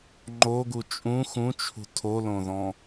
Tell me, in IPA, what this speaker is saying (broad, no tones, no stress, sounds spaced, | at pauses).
ŋ͡ǃ o ɡ u t͡ʃʼ ũ x ũ t͡ʃʰ ṳ tʰ o l õ ð ɔ̃